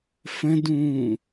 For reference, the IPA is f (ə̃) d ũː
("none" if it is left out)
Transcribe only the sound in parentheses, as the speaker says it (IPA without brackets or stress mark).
ə̃